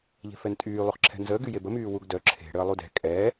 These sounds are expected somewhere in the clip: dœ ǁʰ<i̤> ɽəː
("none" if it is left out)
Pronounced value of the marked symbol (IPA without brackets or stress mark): e̤